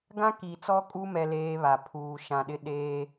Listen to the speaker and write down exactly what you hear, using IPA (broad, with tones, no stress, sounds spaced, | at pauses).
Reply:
ɡ ã˦ k i˨ t͡s ɔ˦ kʼ u˦ m ɛ˦ l eː˦ β a˨ pʰ uː˨ ʃ ã˨ ɗ ɪ˦ ɗ eː˦